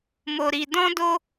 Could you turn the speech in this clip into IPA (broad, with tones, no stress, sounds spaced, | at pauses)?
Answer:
m o˧ ɾ i˧ d ɔ̃˦ d o˦